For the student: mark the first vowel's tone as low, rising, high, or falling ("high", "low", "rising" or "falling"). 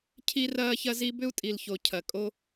high